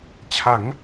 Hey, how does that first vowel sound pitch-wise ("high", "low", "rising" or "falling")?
rising